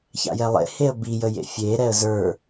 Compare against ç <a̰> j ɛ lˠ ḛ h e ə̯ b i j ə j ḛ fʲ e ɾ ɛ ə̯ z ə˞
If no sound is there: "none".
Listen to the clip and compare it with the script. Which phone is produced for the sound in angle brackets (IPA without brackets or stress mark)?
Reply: a̰